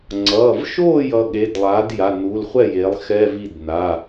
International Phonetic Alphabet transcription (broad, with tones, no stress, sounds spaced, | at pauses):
ŋ͡ǀ ʌː˩˧˩ v ʃ oː˥˩ j ʌ˩˧˩ ɠ e˩˧˩ d lˠ aː˩˥ d j a˩˧˩ n uː˩˧˩ l χʷ ɛ˥˩ j e˩˥ lˠ x ɛ˧˥˧ v i˥˩ d n a˩˧˩